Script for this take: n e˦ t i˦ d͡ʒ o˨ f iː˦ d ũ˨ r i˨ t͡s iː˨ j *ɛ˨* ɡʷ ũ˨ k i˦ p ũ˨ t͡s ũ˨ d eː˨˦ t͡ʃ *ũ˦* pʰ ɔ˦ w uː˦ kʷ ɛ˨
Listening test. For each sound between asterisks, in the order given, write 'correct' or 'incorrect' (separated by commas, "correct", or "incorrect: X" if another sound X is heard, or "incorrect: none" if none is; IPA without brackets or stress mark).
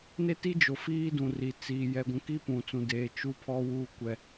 correct, incorrect: u˦